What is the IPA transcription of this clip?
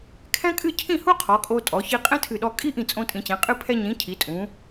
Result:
kʰ ɛ̃˥ kʼ ɨ˥˧ cʰ ĩ˥˧ h u˥ qʰ ɔ˩˧ kʼ o˧ tʼ ɔ˩˧ ç i˧ qʼ ɛ̃˥ tʰ ɨ˧˩ ɗ ɔ˧ kʼ i˥ ʔ ĩ˧˩ t͡sʼ õ˧ tʼ ĩ˩˧ t͡ɕ ɛ̃˩˧ qʼ ɨ˧ pʰ ɛ˧ ɲ ĩ˩˧ cʰ i˩˧ tʼ ũ˩˧

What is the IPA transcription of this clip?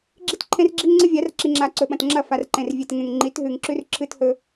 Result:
ɡ͡ǁ i˦ t ǃʰ ẽ˦ r ɡ͡ǁ i˦ ŋ ŋ͡ǀ ɨ˦ vʲ a˨˦ r ǁ i˨ ŋ͡ǁ a˨ ǀ ɵ˨ ɓ ɐ̃˨ t ŋ͡ǁ ɐ˦˨ f a˨ r ǃ ẽ˨ r vʲ e˨ t ŋ ẽ˨ ŋ ŋ͡ǃ i˨˦ t ɦ ʉ˨ ŋ ǁ ʉ˦ r ǁʰ ɨ˦ t h ɵ˦

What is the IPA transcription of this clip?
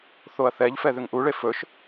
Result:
θ o ɐ̯ θ ɛ ʎ f ɛ ð ʏ ŋ ʔ u ɭ e f ɵ ʃ

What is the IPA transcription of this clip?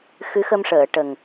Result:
x ɨ˧˥ x ə˧ m ʂ əː˨˩˨ ʈ ə˨˩ ŋ

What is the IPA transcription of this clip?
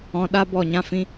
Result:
ɔ̃˨ ɗ a˦ b ɔ˦˨ ɲ ã˦ f ĩ˦

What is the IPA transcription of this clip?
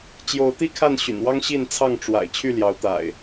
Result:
t͡ɕ j o˨˦ ʊ̯ t̪ i˦ kʰ a˥˨ n ɕ y̰˨˩ n w ɑ˦ ŋ ɕ i˥˨ n t͡sʰ ɑ˥˨ ŋ ʈ͡ʂ w a̰˨˩ ɪ̯ t͡ɕʰ y˥˨ l j ɑ˨˦ ʊ̯ t̪ a̰˨˩ ɪ̯

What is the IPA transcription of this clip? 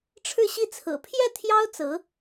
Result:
ʈ͡ʂʰ ɻ̩˥˧ ɕ i˥˩ t͡sʰ ɹ̩˨˩ pʰ j ɛ˥˩ t̪ʰ j ɑ˥ ʊ̯ t͡s ɹ̩˧˥

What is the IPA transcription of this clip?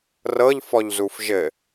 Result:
r ɤ ʎ f ɔ ʎ z u f ʒ ɘ

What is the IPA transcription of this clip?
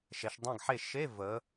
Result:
ʃ ɛ˩˧ ʃ dˤ ɛ̃˥˨ ɡ ħ e˥˨ ʃ e˧˥˧ v ə˩˧

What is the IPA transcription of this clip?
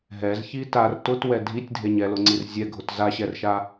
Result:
ɦ ɛ z ç i t a r t ʊ t w ɛ dʱ i tʲ dʱ e ɲ ɛ l ʊ ŋ͡ǀ i r zʲ ɛ ɡʱ ʊ t z a ɕ ɛ r ʃ a

